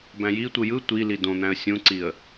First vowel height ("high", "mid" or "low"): low